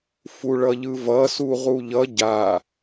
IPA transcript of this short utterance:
f u ɭ ʌ ʎ ɯ v ʌ s u ʁ u ʎ ʌ ɟ a

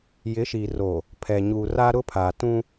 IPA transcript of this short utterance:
j ɪ˨˦ ʃ iː˨ r oː˨ | pʰ ɛ˨ ɲ uː˨ r a˦ ɾ ʊ˦ pʰ a˨ t ũ˦

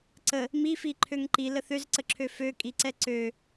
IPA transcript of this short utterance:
ǀ ə | m i f i ǃʰ ø ŋ ǃ i l ə θ ø z ǀ ə ǁʰ ø f ø kʼ i ǀ ɛ ǀ ø

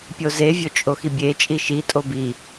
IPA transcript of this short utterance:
pʲ o z e vʲ o t͡ʃʼ o x i bʲ e t͡ʃʼ i ʃ i tʼ o b i

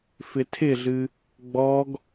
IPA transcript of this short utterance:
f ɪ tʰ ɪ ɮ ɨ | ɡ͡b ɔ ɡ

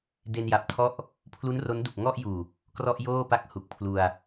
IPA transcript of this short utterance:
d e˧ n j a˨˩ p̚ tʰ ɔ˥˩ ʔ | pʰ l u˦˥ n r o˦˥ n d u˨˩ k̚ ŋ ɔ˥˩ ʔ j uː˨˩ | k r ɔ˥˩ ʔ j oː˥˩ p a˥˩ k̚ h u˨˩ k̚ pʰ l u˧ a̯

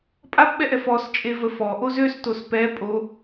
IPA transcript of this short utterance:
pʼ a p ɓ ɛ ʔ ɛ f ɔ s t͡ʃʼ e v ə f ɔ ʔ o z ø s t o s p ɛ pʼ o

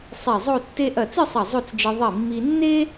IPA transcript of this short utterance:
sˤ i˧˩ zˤ o˥˧ tː e˥ ʔ ɐ˧˩ t͡s ɨ˥˧ sˤ ɐ˧˩ zˤ o˥˧ t͡s d͡ʒ ɨ˧ ðˤ i˧˩ mː i˧ nː e˥

